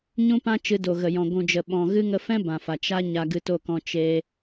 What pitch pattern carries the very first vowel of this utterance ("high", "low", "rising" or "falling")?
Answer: high